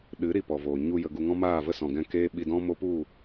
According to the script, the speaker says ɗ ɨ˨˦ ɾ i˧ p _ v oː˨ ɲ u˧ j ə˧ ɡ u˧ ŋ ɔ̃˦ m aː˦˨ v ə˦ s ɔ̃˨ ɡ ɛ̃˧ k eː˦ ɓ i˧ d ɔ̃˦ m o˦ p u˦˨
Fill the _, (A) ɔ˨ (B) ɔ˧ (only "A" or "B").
A